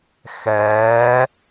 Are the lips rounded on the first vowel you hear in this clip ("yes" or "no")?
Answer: no